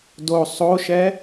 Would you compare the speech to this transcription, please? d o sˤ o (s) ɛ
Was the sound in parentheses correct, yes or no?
no